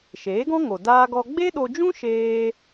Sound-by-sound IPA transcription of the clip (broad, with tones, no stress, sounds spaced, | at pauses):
ʃ eː˨˦ ɡ ɔ̃˦ ŋ o˨ d aː˦ ɡ ɔ˦ ɡ͡b e˦ ɗ o˧ d͡ʒ ũ˦ ʃ eː˦